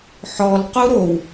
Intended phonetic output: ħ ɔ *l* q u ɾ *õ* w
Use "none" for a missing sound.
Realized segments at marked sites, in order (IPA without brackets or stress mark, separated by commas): l, o